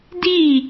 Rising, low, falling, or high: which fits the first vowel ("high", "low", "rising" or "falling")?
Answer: falling